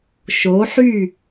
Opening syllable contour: rising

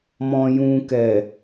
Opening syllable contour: low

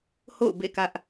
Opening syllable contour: falling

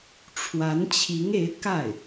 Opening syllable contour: rising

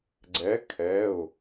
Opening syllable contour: rising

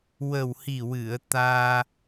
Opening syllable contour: low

